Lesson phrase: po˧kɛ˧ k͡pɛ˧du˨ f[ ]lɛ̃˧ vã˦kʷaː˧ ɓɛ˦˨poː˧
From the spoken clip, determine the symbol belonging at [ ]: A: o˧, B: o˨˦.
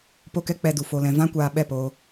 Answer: A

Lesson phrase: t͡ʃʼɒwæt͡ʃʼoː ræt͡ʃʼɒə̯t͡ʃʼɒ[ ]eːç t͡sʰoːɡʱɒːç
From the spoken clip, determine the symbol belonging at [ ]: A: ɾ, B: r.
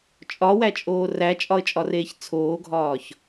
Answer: B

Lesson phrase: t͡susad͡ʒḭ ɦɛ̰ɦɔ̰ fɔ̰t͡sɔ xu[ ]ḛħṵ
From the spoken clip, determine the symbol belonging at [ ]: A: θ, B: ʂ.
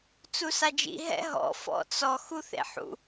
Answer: A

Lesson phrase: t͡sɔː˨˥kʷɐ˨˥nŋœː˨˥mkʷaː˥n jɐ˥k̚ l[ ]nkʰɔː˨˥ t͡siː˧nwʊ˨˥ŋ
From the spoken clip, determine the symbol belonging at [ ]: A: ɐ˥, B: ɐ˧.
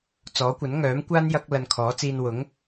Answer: B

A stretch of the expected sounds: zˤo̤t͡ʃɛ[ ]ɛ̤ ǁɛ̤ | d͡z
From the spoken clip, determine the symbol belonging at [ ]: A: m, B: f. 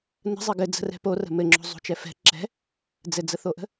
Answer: B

